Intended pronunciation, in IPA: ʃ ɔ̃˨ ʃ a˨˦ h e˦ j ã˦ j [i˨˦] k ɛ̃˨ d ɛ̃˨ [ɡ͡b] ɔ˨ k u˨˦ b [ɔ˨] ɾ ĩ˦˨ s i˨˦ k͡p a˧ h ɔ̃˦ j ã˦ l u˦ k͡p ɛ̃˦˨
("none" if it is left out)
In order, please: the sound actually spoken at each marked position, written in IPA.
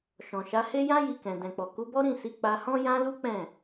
i˧, k͡p, ɔ˦

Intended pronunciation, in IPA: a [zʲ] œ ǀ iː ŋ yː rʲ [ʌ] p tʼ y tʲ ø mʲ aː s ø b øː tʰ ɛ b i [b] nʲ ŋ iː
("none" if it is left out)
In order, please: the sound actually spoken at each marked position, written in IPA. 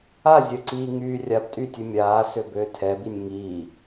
zʲ, a, none

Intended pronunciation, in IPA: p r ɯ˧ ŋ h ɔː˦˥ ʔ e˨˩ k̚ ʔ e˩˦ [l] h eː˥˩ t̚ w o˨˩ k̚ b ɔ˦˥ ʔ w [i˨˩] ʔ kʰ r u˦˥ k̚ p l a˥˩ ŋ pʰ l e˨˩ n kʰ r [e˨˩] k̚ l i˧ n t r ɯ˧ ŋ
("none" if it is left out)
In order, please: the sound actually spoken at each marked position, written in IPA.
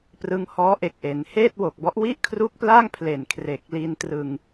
n, i˥˩, e˨˩

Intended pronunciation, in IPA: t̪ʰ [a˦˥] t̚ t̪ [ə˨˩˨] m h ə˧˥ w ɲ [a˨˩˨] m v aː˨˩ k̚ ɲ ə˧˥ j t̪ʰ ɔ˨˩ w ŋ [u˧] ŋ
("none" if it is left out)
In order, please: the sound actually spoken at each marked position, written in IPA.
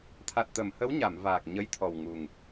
a˨˩, ə˨˩˨, a˨˩˨, u˨˩

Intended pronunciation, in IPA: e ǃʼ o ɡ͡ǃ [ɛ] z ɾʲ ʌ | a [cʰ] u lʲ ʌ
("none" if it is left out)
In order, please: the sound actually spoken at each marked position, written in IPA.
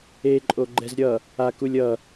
ɛ, k

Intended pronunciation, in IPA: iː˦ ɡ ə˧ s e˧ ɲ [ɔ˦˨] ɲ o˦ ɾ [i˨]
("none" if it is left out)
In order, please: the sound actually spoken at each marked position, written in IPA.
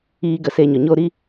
ɔ˨, i˦

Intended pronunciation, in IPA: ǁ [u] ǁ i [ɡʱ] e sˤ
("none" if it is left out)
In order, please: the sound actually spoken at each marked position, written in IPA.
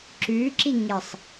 ʉ, ŋ

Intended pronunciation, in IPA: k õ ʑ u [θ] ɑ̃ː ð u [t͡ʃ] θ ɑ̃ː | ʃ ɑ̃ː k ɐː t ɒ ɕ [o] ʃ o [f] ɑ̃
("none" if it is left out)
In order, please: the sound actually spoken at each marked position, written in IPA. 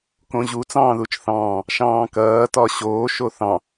t͡s, t͡ʃ, oː, θ

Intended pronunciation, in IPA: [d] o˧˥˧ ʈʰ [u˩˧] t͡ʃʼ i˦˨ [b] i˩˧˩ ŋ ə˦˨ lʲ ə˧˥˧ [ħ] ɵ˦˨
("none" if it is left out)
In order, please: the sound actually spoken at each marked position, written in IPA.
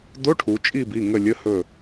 d, u˩˧, b, h

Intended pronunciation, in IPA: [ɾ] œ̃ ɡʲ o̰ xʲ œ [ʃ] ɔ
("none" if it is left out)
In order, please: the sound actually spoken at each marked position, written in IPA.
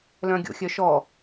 l, ʃ

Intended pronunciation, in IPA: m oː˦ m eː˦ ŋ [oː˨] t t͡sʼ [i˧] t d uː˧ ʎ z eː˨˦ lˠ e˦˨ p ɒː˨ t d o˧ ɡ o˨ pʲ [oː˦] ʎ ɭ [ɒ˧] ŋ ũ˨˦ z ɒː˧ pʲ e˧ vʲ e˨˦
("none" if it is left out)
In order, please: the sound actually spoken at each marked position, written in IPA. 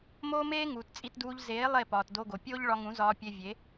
uː˨, i˧, oː˦, ɒ˧

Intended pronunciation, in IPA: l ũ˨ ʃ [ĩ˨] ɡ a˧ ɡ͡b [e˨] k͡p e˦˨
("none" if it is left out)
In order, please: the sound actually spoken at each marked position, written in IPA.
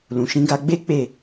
ĩ˧, e˦

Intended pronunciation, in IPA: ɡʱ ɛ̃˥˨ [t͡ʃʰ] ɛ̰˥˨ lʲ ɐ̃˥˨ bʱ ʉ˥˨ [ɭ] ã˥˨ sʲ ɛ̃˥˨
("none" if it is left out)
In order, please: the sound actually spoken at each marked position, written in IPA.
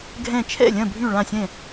t͡ʃʰ, ɭ

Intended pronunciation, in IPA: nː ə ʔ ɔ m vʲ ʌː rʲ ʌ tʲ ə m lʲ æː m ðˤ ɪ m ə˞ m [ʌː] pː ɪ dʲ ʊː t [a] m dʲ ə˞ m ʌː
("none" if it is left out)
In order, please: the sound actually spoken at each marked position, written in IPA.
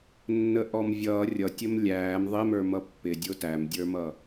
ʌ, æ

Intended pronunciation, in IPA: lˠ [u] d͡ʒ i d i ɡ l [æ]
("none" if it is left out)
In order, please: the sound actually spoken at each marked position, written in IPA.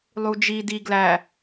u, æ

